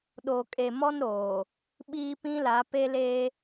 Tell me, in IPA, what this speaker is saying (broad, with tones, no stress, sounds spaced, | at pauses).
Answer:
ɗ o˨ kʼ e˨ m ɔ˦ n ɾ oː˨ | ɓ iː˦ p ĩ˦ l a˨˦ p e˦ l eː˦